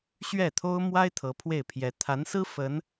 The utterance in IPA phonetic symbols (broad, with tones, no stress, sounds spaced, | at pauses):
ɕ ɥ ɛ˥˩ t̪ʰ o˥ ʊ̯ m w a˥ ɪ̯ t̪ʰ ɤ˧˥ pʰ w e˥˩ ɪ̯ pʰ j ɛ˧˥ t̪ʰ a˧˥ n s ɹ̩˥ f ə˧˥ n